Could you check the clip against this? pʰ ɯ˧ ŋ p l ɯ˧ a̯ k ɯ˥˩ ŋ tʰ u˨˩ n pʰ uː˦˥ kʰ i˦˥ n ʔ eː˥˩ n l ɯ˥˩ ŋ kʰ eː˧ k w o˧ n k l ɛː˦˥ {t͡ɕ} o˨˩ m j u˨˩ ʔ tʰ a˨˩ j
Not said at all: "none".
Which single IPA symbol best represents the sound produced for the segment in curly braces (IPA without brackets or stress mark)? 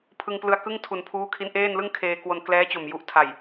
t͡ɕ